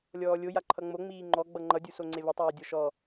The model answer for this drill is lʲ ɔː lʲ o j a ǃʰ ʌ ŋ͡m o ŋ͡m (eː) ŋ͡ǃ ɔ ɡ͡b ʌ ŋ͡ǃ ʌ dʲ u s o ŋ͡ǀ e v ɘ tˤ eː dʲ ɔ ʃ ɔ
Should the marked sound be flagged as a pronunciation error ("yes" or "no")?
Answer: yes